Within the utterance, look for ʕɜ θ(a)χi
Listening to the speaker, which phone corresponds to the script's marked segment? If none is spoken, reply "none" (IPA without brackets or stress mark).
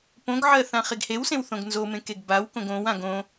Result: ã